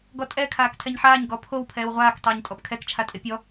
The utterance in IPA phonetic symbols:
ɡɔtʼɛ kʰaːktʰɛɲħaːɲ ɡɔpʰow pʰɛːwʁʷaːk tˤoːɲtʼɔpkʰɛk t͡ʃʰatʼepʲɔ

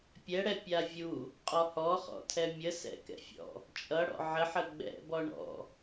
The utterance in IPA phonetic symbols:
pʲɛɽɛpʲa vʲu | qʼɔhɔχɔ̰ tʰɛmʲə sɛ̰kɛ̰fʲɔ̰ | t͡ʃʼʌ ɽɔ̰ʕəħə ɡ͡bɛ̰bɔ ɳɔ̰

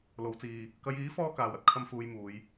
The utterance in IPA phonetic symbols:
lo˨˧wt͡siː˨ | kɐ˨˧jiː˨˥ fɔː˥kaː˨w ɐ˥t̚kʰɐ˥mfuː˧jmuː˨˧j

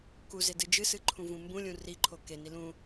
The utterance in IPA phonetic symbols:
kuze dɨd͡ʒɨsɨ ǃʰũvũmbũlʲũ riǃʰo keni lũ

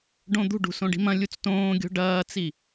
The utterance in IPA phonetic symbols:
ɖõd̪ṳɖṳ sõɖi̤mɐ̃lʲut͡s tõːɡʲo̤ ɖɐːt͡si

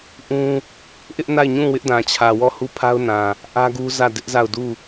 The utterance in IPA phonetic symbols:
ʔũ˦ | ʔɪ˦ʔna˦˨ɪ̯ɲũ˦˨ wɪ˦ʔdã˨t͡ɕʰä˨wɔ˦˨ hu˦˨pʰa˦ʊ̯nã˨ | ʔä˦ɡu˦zä˦˨ dɪ˦ʔza˦˨ʊ̯du˦˨

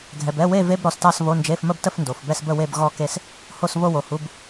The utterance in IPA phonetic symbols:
ɡʱɛ˨bɛ˧˥˧we˥˧ve˧˥˧b ɾɔ˨stɑ˥˧sβo˧˥˧nd͡ʒe˧˥˧f mə˥˧btə˥˧f ndo˨fbɛ˥˧sbə˥˧we˥˧b ɣɔ˥˧ke˥˧s | ho˥˧sβo˥˧wo˨hu˧˥˧b

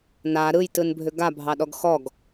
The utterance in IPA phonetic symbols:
na ɾɯjtɯnbʱʏ ɡabʱɑɗɔɡ xɔɡ

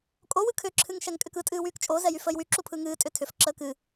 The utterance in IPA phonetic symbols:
kʼowɯ kʰʏǁʰɨŋ ʃɛŋkʼʏkɯtʼɨː wyːkt͡ʃʼozɛ jyfəːjwyǁu pʰɯŋɨːtʼʏ tʰʏfǁəː kɨ

